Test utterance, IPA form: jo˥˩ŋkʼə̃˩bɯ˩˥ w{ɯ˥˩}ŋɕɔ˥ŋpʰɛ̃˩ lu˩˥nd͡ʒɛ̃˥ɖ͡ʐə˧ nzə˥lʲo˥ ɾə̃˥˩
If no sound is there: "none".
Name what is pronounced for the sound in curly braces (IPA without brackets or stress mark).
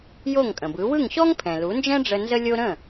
ɯ˥˩